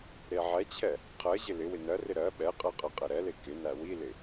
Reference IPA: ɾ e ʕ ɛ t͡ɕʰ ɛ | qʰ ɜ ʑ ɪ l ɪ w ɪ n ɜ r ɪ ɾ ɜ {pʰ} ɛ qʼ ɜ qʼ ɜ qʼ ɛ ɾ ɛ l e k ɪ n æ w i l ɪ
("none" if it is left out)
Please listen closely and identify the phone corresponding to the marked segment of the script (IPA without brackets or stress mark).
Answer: ɓ